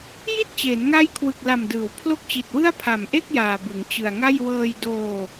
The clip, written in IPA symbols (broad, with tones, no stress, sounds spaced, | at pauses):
j i˥˩ t̚ t͡ɕ eː˩˦ n ŋ a˦˥ j kʰ w ɯ˨˩ k̚ l a˨˩ m d ɯː˩˦ w pʰ l o˦˥ k̚ t͡ɕ i˨˩ t̚ w ɯ˥˩ a̯ pʰ a˨˩ m ʔ e˥˩ k̚ j aː˨˩ b ɯ˩˦ ŋ t͡ɕ ɯ˨˩ a̯ ŋ a˥˩ j w ɤː˧ j d oː˧